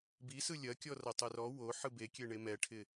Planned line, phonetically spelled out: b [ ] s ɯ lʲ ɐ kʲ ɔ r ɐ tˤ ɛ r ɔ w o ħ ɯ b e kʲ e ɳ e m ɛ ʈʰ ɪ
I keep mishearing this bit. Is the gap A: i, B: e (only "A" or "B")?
A